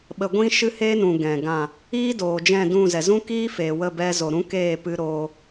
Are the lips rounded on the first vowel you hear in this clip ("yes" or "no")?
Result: no